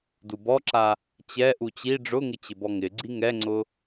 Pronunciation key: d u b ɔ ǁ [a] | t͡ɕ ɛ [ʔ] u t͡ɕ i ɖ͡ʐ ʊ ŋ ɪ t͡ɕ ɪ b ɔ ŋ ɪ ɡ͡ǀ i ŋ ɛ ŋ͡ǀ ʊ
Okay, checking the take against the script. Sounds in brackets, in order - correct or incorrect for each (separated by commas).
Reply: correct, correct